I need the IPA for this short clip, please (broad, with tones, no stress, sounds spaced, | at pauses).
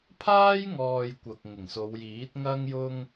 pʰ aː˥ j ŋ ɔː˨ j kʷ ɐ˨ k̚ ŋ ɪ˨˩ ŋ s o˨˧ w j iː˨˥ t̚ ŋ ɐ˥ ŋ j ʊ˥ ŋ